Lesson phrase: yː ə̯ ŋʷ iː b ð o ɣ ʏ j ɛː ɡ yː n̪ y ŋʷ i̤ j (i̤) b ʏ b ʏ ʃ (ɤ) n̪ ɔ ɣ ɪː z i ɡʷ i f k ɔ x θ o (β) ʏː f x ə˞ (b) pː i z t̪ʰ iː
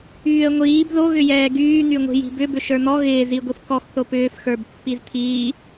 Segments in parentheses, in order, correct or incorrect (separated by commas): correct, incorrect, incorrect, correct